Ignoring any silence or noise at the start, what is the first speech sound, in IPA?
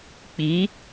k͡p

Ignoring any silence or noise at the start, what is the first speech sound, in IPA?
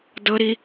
d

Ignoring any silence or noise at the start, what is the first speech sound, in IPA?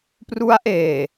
p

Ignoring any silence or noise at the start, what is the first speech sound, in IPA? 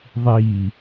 ðˤ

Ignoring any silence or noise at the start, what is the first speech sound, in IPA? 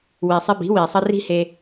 w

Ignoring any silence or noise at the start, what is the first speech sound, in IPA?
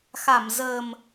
x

